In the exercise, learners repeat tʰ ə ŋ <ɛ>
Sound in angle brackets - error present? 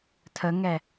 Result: no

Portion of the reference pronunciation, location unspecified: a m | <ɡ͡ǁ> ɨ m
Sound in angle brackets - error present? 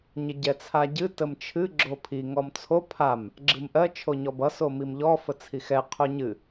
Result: no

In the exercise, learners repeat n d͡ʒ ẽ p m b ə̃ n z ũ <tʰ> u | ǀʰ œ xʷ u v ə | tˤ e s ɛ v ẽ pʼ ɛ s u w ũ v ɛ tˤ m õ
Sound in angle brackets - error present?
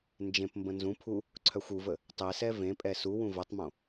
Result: yes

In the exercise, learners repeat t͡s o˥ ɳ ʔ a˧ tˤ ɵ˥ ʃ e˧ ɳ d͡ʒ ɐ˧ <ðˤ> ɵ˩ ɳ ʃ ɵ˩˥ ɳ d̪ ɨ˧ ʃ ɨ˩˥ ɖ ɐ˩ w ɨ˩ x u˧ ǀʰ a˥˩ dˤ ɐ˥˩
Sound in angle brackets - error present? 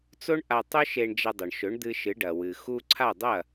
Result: yes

